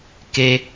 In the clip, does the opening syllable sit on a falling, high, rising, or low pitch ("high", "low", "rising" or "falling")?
high